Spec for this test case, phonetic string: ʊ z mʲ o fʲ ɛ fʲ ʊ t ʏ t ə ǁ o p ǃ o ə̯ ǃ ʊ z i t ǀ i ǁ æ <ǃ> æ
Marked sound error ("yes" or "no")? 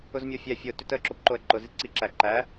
no